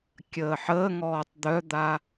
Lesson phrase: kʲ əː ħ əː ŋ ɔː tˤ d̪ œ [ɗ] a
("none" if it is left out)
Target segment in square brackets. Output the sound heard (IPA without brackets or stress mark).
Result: d̪